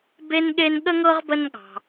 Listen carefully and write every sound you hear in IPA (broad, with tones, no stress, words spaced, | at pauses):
be˦nɠe˦n ɠə˥ŋɤ˥ʁbə˦n ɠɑ̤˨